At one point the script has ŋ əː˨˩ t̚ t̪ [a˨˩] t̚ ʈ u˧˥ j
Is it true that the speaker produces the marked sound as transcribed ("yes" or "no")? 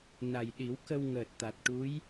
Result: yes